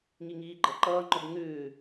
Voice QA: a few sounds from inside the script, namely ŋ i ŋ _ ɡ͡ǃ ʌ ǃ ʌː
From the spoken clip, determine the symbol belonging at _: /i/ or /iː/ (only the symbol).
iː